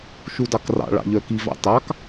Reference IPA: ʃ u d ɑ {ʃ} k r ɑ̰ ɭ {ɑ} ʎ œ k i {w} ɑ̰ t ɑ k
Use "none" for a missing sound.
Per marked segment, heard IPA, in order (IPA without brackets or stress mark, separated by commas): none, ɑ̰, v